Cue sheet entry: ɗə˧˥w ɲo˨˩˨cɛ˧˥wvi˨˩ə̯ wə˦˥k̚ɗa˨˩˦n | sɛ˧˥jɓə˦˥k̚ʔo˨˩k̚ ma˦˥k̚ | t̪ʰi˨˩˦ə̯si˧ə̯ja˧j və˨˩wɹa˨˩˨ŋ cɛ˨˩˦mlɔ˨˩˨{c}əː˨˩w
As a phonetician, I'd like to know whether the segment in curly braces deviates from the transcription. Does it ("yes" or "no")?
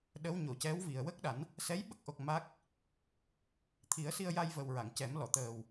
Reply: yes